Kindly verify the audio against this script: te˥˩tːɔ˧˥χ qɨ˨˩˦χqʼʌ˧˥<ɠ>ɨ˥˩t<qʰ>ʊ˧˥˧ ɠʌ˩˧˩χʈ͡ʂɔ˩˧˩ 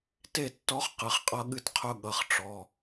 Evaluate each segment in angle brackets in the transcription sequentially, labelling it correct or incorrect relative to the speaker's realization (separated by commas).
correct, correct